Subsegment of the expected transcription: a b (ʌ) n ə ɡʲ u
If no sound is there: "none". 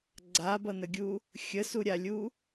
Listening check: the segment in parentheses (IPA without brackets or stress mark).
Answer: ʌ